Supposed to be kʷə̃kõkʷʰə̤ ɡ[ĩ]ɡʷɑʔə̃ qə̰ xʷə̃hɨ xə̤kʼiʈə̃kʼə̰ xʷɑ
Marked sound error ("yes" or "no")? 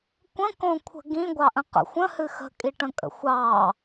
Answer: no